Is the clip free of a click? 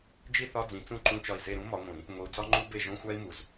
no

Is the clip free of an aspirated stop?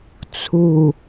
no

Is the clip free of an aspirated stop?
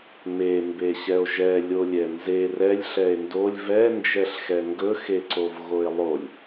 yes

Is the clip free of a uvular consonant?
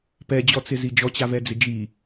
yes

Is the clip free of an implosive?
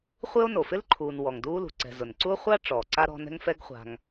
yes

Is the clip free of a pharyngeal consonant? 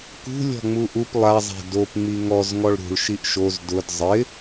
yes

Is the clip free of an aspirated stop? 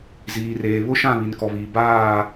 yes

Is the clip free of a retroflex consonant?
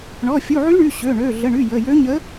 no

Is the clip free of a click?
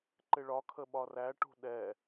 no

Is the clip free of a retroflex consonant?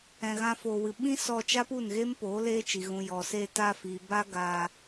yes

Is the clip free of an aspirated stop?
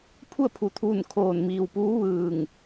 no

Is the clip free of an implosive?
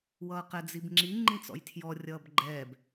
yes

